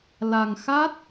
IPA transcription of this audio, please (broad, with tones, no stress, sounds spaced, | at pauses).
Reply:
l a˧ ŋ x a˦˥ t̚